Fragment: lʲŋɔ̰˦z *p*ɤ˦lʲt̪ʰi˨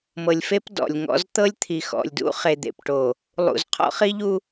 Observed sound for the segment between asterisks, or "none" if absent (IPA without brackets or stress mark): t̪